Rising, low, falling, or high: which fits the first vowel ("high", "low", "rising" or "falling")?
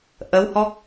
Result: rising